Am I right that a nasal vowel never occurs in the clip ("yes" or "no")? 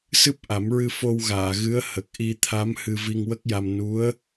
yes